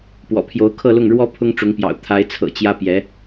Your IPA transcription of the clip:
pwɔ̰˨˩pʰjo˧˥ʊ̯kʰɤ˥˧lʊ˥˩ŋ ɻwɔ˥ pʰʊ˥ŋʈ͡ʂʊ˧˥ŋpjɑ̰˨˩ʊ̯ t̪ʰa˧˥ɪ̯t͡sʰɤ̰˨˩ t͡ɕjä˥ pjɛ˧˥

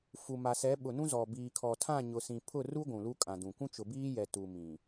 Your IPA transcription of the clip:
fu˨ma˨sɛ˨˦ ɓʊ˨nũ˦zɔ˨ biː˨kʰɔ˨tʰã˦˨ɲʊ˨ sĩ˨pʰʊ˦˨ru˦ ɡʷũ˨lu˦kʼã˨dũ˨ kʷũ˦t͡ʃʊ˨biː˦jɛ˨ tu˨mĩ˨

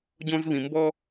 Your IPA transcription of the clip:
ɟõ˦zβĩ˨ mbɔ˦

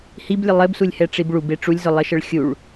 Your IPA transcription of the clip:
hiblʲə lˠɘbsulʲhɛ ʈ͡ʂibɭub eʈ͡ʂulʲzʊ lˠɘʃəɭxʲuɭ

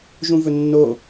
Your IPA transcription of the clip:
ʒũvɵnːo

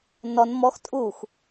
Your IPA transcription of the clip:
nɔn mɔx tʼux

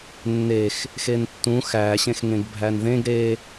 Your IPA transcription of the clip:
nːex | xentːũ xæɕẽxŋẽɡ bʱænðẽɡ ɾe

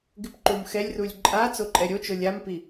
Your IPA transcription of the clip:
ɡɪpǃumxɛlʲrulʲ ǃʼa t͡soǃʼɛɾʲot͡ʃo lʲampi

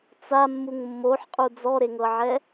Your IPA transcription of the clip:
t͡samːuŋ mːoħqʼu d͡zɔɾeŋɤʕɛ

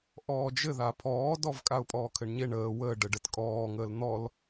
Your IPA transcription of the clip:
ʔɔːd͡ʒɘða pʰɔːdɔv kʼaʊ̯pʼɔːkʰɘɳɲeɳ əː wə ɖɘɖɘtkʼɔːŋəːl n̪ɔl

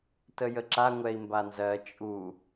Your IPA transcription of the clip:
təjəǁa ŋʷɛi̯mbanzɜ t͡ʃʼu

